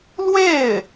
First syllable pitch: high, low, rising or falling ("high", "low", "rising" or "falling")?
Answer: falling